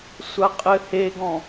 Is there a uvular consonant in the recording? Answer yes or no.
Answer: yes